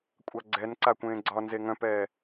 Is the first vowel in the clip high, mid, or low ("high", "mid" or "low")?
low